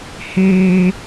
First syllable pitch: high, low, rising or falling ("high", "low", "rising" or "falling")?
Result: high